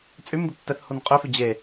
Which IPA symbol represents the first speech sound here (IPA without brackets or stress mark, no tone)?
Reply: t͡sʼ